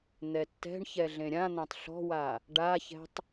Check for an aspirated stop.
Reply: absent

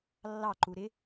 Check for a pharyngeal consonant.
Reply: absent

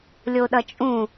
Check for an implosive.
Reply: present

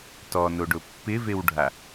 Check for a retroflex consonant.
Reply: present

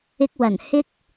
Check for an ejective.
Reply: absent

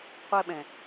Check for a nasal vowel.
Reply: present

